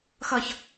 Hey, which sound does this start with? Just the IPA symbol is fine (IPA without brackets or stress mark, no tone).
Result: x